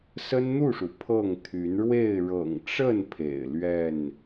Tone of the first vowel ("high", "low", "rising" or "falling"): high